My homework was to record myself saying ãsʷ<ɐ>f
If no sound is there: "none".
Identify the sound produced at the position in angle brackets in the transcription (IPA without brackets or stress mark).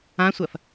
ɐ